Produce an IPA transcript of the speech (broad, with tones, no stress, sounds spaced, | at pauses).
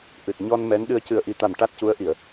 ʔ ɨ˨˩ t̚ ɲ ɔ˧ n m ɛ˧˥ n ɗ ɨ˧ ə̯ c ɨ˨˩ ə̯ ʔ i˨˩ t̪ a˨˩ m ʈ a˦˥ t̚ c u˧˥ ə̯ ʔ i˨˩˨ ə̯